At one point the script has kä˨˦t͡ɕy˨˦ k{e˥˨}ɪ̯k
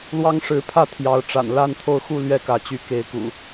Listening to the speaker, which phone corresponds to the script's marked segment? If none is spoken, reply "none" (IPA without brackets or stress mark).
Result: e˨˦